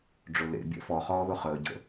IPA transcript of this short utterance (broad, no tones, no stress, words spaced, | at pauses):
ɖ͡ʐʊlḛ bʲɛ̰fɔχɔːðʊ χəːɟə̰